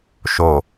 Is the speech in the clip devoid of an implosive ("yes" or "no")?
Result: yes